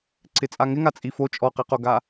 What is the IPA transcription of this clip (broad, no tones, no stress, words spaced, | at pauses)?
ǀɪt͡sʼaŋɪŋa t͡sʼifo t͡ʃʼɔqiqoɡa